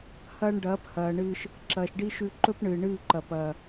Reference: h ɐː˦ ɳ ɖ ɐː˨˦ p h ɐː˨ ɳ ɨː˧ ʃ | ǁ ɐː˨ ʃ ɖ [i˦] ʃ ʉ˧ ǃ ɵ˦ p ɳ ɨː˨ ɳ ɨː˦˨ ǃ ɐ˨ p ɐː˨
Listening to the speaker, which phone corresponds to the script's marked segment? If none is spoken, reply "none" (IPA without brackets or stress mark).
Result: i˦